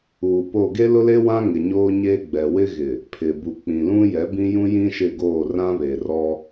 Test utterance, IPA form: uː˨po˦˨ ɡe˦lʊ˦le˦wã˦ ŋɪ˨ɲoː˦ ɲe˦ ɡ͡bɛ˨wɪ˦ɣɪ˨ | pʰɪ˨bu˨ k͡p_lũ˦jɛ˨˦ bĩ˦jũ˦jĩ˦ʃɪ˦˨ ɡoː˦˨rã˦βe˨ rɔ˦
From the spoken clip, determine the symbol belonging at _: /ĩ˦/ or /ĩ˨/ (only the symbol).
ĩ˨